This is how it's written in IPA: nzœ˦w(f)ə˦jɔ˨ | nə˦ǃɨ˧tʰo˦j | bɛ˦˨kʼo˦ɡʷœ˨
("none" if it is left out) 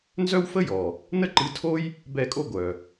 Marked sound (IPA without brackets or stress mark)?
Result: f